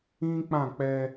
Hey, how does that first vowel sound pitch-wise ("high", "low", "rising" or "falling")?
high